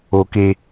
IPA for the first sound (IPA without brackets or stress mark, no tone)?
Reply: o